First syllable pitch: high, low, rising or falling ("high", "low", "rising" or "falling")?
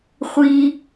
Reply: high